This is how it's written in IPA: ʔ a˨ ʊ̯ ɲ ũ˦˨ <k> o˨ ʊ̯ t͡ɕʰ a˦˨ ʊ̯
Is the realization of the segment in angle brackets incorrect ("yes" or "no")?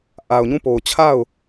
yes